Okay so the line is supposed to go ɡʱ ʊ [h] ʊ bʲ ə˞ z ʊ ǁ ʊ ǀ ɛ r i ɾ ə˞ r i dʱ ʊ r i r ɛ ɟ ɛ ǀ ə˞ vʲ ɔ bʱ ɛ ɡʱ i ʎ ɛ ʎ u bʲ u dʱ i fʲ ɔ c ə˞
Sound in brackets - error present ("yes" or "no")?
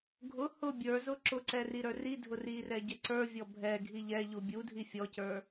no